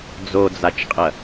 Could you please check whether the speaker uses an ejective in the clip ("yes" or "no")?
yes